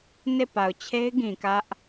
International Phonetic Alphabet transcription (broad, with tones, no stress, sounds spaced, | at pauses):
n e˦˨ p a˨ ʊ̯ t͡ɕʰ e˦ ɪ̯ ɡ ĩ˨ k ä˦ ʔ